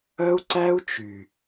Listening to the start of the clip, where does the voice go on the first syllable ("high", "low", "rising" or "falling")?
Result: high